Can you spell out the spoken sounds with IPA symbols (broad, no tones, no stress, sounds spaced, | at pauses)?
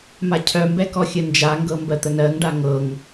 m a cʰ œ m b ɛ k ɔ xʲ ə n d͡ʒ a ŋ ɡ ɤ m b ɜ t̪ ə n ɜ ŋ ɖ a ŋ ɤ ŋ